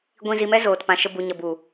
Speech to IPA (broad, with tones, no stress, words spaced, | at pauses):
ɡʷĩ˧zi˧mɛ˦ zoː˨tpã˨ʃə˧ bu˨ɲə˨bu˨